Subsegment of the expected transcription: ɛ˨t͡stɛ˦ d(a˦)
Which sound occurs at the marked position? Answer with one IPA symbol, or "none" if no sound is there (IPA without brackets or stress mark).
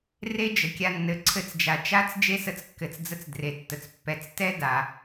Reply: a˨